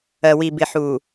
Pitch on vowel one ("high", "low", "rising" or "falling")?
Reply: low